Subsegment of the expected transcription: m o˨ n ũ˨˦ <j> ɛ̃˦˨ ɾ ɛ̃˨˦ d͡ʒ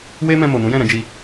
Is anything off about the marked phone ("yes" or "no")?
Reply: no